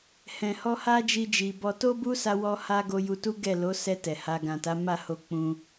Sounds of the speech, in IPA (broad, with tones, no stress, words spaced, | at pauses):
hɛ̃˨hɔ˧ ha˦d͡ʒi˧d͡ʒi˨bɔ˧ to˦bu˦ sa˦wɔ˦ha˦ ɡo˧ju˧tu˦ ɡɛ˦˨ lo˨˦sɛ˧ tɛ˨ha˧ ɡã˨ta˨˦ma˦˨ho˧ k͡pũ˧